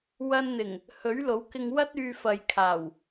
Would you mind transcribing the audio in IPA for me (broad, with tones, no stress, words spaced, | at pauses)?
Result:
wɐ˧nn̪ɪ˨˩ŋ | hɵ˨˥ɥlo˨˥wkɪ˧ŋwɐ˥t̚ yː˧fɐ˨jkʰaː˨˩w